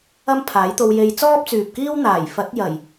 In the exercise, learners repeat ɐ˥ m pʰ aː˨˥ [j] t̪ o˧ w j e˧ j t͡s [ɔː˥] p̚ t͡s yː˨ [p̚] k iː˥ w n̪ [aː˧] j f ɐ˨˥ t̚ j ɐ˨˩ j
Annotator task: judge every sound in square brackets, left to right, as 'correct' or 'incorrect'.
correct, correct, correct, incorrect

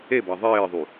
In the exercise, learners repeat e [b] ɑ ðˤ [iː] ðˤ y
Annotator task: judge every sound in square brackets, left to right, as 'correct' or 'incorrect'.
correct, incorrect

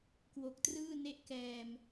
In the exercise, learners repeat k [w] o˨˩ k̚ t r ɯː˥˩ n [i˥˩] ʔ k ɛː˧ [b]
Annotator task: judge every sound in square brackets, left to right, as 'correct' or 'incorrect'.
correct, incorrect, incorrect

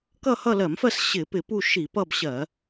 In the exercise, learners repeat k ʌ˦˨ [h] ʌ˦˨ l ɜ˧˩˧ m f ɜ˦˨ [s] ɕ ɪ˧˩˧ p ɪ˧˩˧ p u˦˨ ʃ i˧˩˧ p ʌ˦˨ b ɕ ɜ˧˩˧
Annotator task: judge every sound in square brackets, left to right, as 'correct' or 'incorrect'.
correct, correct

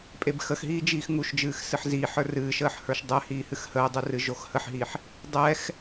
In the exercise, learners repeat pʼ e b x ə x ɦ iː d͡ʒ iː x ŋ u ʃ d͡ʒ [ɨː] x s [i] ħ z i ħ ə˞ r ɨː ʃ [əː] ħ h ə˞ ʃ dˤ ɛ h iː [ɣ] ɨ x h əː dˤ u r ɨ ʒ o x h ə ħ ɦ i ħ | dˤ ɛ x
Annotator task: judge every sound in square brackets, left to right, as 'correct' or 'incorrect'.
correct, incorrect, correct, incorrect

